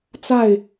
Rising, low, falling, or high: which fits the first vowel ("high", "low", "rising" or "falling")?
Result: falling